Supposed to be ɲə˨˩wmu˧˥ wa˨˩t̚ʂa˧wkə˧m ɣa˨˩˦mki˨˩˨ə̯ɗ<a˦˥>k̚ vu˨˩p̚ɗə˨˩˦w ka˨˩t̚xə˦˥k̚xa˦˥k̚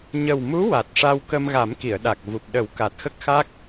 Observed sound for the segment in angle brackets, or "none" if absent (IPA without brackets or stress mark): a˨˩